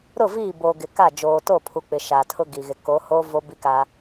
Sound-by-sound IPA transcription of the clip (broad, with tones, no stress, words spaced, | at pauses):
ɾʊ˦˨viː˦˨ boː˨ ɡɪ˨ka˦˨ d͡ʒoː˨to˦˨pʰu˨ k͡pɪ˨ ʃa˨tʰʊ˦ɡi˨ɣɪ˨ ko˨˦hoː˦ vo˦bi˦ka˦